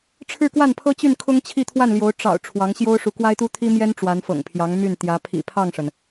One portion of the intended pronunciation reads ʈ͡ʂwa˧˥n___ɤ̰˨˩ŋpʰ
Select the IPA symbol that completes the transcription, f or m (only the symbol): f